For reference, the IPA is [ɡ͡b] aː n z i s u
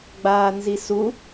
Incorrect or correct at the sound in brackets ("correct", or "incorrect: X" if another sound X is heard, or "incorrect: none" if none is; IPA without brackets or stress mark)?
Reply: correct